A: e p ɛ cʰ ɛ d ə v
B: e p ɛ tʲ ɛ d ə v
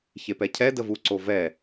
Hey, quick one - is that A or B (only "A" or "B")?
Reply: A